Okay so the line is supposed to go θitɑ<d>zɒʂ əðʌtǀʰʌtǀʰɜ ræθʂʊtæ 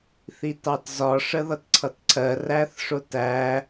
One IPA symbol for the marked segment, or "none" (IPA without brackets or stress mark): t